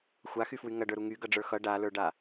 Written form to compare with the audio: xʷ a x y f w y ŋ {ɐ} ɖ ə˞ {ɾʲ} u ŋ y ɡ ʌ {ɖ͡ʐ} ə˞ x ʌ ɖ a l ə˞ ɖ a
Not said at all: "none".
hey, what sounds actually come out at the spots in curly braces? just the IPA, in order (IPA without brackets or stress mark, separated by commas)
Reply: ɐ, ɾ, ɖ͡ʐ